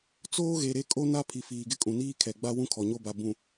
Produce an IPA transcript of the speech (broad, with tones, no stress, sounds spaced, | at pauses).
t͡s oː˦ ɣ e˨ ɾ e˦ kʼ o˦ n a˦ pʰ i˨ f iː˨ ɡ ɪ˦ kʼ ũ˨ n iː˦ kʰ ɛ˨ ɡ͡b a˦ w ũ˦ kʰ ɔ˨ ɲ o˦˨ b a˨ b ũ˨